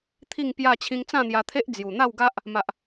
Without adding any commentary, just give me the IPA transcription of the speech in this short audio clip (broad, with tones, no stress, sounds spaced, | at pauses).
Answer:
t̪ʰ i˥˧ ŋ p j a˥˧ t͡ɕʰ ĩ˧ ŋ t͡s ã˥˧ n̪ j a˧ t̪ʰ e˦ ʔ d͡z j u˨˩ n̪ a˥˧ w ɡ a˦ ʔ | m a˨ ʔ